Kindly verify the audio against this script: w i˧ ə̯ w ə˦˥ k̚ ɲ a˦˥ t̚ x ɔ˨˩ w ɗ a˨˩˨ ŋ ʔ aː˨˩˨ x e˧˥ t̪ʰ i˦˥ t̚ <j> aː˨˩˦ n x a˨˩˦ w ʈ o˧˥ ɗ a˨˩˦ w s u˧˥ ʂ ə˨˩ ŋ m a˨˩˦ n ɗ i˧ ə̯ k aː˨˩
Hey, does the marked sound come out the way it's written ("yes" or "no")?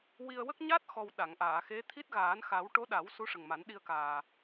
no